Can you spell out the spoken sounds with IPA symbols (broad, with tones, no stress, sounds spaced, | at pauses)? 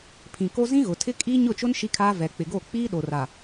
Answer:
pʰ ĩ˨ k o˦ z ĩ˦ ɣ ʊ˨ tʰ ɪ˦ kʼ iː˦ ɲ ʊ˦˨ t͡ʃ ʊ˦ n ʃ i˦ kʰ aː˦ v ɛ˨ k͡p ɪ˨ ɡ o˦˨ k͡p iː˦ ɗ o˨ r a˨